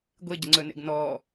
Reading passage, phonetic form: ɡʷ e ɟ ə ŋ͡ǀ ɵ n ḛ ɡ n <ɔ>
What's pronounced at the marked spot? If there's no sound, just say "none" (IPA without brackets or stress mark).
ɔ